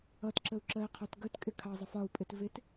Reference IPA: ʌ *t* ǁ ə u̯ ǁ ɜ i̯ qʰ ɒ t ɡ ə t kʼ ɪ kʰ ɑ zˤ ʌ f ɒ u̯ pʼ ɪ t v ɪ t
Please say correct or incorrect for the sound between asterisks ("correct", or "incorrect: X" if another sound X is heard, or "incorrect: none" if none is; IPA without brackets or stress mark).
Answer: correct